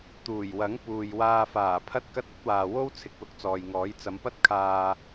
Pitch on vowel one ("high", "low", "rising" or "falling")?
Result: low